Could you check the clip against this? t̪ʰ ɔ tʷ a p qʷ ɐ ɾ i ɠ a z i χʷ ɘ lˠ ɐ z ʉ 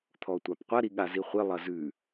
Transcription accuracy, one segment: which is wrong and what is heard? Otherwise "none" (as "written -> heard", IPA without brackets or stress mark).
none